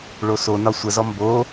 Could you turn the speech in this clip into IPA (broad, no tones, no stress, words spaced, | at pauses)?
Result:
ɭosonɒ sʷəzɔ mbo